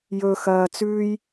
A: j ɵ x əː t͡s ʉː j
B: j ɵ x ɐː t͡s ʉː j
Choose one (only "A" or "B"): B